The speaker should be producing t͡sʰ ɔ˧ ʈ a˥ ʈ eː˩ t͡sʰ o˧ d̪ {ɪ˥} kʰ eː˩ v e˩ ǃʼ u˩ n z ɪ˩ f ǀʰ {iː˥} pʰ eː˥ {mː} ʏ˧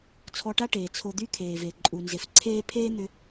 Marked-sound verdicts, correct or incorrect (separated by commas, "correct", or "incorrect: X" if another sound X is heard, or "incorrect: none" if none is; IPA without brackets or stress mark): incorrect: y˥, incorrect: eː˥, incorrect: n̪